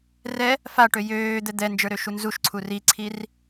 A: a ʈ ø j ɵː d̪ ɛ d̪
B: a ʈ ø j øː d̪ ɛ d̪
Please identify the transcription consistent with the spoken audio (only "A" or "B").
B